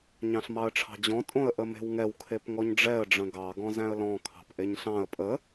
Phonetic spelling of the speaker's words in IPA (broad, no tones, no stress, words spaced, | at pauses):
ɲɑ̃ɬmɑə̯ʈ͡ʂʰɑ̤d͡ʑɔ̃ tʼõə̯ʔəme̤wŋɛw kʰepŋɔɲɖ͡ʐɛə̯ ɖ͡ʐə̃ɡɑ ɡɔ̃zæ̃ə̯lɔ̃ kʰɑ̤pʔeɲɬɑ̃ə̯ pʼə